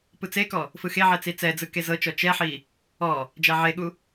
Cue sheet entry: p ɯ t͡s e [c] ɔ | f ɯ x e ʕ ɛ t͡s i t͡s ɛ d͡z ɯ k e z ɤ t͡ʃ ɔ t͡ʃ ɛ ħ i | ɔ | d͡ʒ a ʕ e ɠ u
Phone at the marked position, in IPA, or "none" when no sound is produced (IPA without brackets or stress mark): k